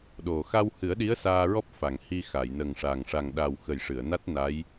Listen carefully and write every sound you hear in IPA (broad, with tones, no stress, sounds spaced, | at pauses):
ɗ o˨˩ x a˧ w h ɨ˨˩˦ ə̯ ɗ i˧˥ ə̯ s aː˧ ɹ ɔ˦˥ p̚ f a˨˩˨ ŋ h i˧ x a˨˩˨ j n ə˨˩ ŋ ʂ a˨˩ ŋ ʂ a˨˩ ŋ ɗ a˨˩ w x ə˨˩ j ʂ ɨ˨˩˨ ə̯ n a˦˥ t̚ n a˧˥ j